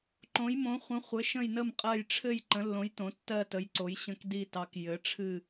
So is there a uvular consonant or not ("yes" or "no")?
yes